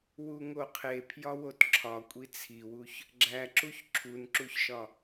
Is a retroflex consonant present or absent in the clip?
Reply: absent